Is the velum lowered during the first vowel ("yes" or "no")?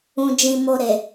yes